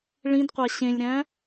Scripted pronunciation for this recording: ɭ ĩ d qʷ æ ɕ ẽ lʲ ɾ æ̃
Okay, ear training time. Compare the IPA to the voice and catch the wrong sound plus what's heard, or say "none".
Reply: none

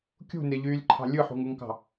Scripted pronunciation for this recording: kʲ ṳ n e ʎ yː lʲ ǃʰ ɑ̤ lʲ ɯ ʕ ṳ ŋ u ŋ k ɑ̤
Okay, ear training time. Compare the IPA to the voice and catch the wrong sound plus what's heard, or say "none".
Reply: ʕ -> ħ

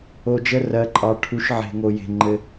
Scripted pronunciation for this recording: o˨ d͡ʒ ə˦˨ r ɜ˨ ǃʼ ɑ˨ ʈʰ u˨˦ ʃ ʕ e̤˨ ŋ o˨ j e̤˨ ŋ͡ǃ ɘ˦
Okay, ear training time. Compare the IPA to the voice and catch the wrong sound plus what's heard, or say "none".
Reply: none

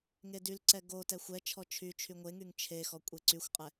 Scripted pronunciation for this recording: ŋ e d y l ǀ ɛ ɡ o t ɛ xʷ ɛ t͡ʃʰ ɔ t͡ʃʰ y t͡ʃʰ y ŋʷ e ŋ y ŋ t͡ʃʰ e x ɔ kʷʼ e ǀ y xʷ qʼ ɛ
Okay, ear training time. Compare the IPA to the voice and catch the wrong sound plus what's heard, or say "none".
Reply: none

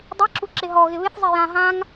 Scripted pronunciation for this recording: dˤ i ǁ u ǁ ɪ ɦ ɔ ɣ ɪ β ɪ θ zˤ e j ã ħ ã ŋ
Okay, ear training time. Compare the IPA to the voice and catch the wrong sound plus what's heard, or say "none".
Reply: ħ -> ɦ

